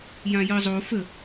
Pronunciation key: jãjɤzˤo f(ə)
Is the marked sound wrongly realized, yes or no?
no